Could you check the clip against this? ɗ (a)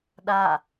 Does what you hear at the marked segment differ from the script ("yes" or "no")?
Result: no